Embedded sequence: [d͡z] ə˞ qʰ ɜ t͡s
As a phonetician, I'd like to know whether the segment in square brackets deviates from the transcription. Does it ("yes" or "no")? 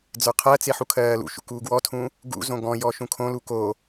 no